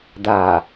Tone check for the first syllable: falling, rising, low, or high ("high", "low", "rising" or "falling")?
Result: low